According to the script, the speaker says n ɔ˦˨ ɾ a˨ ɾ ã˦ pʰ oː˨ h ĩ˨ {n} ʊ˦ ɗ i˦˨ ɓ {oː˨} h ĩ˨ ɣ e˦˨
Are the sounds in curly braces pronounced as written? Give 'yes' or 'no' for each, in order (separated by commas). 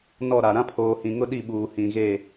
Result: no, no